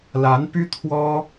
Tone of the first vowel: rising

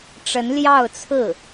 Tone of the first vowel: rising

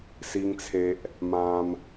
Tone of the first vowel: high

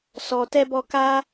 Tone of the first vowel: low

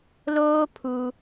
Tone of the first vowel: high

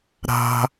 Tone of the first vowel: high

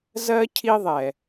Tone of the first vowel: high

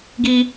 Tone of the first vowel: high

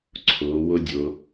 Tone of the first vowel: rising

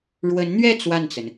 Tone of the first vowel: rising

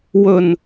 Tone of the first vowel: low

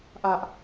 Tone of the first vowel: high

